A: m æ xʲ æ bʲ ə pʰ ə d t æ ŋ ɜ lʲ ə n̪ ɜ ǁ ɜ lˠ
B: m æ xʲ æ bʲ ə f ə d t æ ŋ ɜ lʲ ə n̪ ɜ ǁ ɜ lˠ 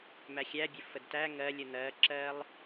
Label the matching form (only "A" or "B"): B